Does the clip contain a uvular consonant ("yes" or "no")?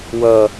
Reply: no